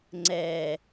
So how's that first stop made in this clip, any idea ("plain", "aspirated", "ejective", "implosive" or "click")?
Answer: click